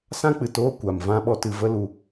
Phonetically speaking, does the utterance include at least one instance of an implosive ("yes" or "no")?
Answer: yes